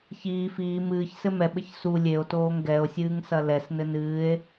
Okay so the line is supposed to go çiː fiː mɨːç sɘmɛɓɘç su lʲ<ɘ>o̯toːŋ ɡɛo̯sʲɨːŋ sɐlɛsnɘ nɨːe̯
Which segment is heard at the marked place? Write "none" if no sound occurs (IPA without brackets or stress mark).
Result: e